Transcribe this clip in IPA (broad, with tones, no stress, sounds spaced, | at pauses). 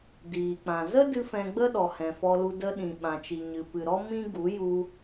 d iː˨ k͡p ã˨ z ə˦ d ɨ˧ f ɛ̃˧ ɡ͡b ə˦ ɗ ɔ˨ h ɛ̃˨ f ɔ˧ l u˧ d ə˧ ɗ ĩ˨ ɓ ã˨ t͡ʃ i˨ ɲ ɨ˨ p ɨ˨ ɾ ɔ˦ m ĩ˦ ɡ u˨˦ j u˧